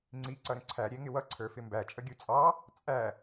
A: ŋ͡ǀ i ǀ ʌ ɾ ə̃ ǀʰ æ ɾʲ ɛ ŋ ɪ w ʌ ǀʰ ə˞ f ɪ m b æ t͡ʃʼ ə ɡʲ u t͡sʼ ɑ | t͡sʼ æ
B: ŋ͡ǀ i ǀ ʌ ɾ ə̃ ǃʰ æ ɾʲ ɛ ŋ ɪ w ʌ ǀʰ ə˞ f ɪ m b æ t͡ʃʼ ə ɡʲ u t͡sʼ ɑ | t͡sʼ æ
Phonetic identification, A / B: A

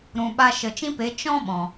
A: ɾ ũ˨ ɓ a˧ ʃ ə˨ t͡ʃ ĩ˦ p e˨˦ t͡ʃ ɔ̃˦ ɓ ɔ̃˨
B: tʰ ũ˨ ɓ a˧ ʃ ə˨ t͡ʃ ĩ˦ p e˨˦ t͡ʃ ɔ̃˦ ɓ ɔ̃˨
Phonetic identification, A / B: A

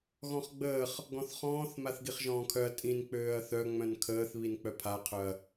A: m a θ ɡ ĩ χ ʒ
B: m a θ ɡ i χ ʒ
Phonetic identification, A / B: B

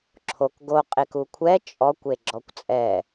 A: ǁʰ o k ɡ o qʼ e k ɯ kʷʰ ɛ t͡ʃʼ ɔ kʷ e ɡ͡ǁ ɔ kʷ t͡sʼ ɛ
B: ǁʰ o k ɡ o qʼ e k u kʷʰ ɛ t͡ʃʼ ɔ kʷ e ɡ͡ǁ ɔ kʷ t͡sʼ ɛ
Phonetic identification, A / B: B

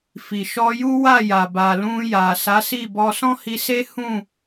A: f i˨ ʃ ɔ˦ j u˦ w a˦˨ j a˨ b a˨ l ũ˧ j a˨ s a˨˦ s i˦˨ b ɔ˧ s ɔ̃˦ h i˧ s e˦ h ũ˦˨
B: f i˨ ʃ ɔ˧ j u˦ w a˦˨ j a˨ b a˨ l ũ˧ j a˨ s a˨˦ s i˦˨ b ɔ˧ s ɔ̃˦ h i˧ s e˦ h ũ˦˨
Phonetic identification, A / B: B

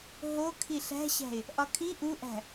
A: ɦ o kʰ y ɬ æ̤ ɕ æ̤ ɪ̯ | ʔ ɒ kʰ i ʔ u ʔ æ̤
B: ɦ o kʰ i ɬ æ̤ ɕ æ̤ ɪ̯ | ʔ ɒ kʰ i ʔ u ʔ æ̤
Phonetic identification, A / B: B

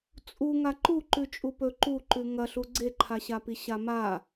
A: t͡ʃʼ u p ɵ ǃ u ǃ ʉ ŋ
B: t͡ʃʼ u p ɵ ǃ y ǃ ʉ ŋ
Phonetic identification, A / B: A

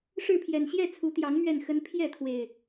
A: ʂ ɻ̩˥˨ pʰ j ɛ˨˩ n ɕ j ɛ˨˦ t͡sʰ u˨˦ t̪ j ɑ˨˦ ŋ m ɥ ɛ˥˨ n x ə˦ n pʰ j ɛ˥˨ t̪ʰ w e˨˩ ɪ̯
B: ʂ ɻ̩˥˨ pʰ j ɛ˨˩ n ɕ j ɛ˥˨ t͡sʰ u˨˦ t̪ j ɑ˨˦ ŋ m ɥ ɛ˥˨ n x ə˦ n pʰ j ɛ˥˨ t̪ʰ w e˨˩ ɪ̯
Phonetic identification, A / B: B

